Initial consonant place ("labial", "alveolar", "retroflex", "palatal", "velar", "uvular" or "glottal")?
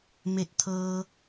labial